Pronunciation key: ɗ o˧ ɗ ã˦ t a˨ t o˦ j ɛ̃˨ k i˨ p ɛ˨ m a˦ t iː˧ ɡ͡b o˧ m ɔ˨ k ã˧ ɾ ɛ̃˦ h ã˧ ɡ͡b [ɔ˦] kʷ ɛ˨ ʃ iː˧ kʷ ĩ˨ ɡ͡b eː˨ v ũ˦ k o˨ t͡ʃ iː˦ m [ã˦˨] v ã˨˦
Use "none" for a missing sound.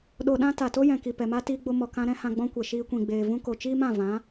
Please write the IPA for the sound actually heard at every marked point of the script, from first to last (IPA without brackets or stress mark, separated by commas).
ɔ̃˦, ã˦˨